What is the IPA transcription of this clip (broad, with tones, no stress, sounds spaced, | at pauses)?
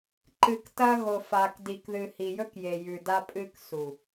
ǃ ɨ˨ k t ɐ˦ ɣ o˨ f a˨ k d i˨ k ð ɨ˨ h i˨ j ɵ˦ k j e˨ j ʉ˨ d a˦ pʼ ɨ˦ k s u˨